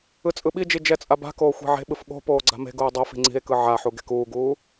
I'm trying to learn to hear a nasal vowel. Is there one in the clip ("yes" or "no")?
no